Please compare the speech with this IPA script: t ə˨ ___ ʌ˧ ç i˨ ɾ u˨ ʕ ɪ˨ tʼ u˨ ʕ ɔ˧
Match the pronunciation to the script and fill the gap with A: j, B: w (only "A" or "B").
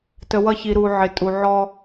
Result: B